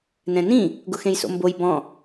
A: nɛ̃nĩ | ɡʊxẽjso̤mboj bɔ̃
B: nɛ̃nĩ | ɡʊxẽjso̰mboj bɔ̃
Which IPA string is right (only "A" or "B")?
B